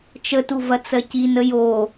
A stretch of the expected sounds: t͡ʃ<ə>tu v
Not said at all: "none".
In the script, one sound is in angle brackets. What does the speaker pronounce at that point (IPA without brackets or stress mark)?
ə